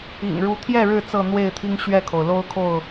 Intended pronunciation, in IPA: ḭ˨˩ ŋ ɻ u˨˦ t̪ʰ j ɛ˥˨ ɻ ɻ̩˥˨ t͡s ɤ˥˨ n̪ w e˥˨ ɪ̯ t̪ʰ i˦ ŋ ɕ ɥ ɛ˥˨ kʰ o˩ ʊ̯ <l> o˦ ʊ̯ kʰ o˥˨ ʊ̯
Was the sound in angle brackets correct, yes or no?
yes